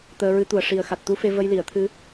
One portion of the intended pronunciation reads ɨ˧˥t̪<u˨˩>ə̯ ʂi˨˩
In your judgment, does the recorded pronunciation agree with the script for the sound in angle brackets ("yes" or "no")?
yes